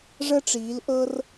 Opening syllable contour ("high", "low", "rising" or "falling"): high